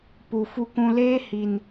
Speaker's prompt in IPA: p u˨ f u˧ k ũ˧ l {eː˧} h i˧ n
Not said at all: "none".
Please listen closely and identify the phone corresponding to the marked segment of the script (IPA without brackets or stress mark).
eː˦